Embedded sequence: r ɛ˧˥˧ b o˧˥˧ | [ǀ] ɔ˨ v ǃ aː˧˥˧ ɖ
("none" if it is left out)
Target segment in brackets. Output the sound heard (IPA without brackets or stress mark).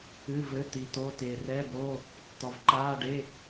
t̪